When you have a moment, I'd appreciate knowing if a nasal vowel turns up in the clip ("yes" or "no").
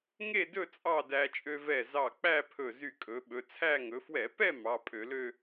no